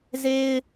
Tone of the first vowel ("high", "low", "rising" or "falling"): high